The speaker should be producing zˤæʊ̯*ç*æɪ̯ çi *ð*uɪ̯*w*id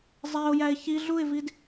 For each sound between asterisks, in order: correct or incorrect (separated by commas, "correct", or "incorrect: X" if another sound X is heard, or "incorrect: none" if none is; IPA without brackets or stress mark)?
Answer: incorrect: j, incorrect: ɮ, incorrect: v